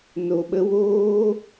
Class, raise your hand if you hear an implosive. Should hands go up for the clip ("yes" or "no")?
yes